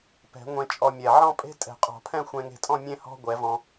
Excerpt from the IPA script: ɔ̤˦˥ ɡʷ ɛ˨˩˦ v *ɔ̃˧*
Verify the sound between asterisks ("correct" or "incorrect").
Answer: correct